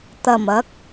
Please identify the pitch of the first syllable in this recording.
low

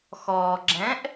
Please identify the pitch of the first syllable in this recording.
low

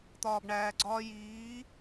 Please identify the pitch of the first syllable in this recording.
low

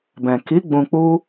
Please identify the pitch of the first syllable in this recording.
low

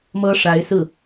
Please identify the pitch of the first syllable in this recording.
high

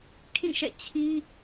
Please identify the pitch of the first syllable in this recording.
falling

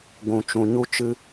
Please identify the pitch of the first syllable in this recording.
low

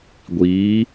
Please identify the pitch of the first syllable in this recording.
rising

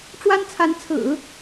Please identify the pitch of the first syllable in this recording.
high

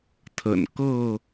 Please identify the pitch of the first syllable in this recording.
low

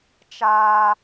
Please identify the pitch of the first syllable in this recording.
high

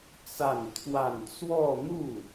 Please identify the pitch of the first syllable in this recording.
falling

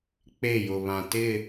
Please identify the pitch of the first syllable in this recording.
falling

